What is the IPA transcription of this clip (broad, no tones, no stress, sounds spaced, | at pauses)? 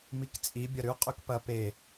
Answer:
m i k t͡sʼ i bʲ ɐ ɾ ʉ qʼ ʉ k p ɐ p e